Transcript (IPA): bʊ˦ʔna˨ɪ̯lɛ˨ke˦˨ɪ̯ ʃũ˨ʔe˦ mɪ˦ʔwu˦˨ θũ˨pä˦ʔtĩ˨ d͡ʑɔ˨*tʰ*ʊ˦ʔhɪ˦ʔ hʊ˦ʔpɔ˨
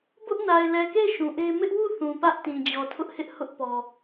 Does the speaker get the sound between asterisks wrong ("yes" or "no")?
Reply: no